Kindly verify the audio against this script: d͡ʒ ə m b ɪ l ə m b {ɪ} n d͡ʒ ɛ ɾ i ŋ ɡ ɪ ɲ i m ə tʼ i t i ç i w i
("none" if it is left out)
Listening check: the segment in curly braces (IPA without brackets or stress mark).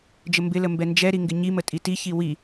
ɛ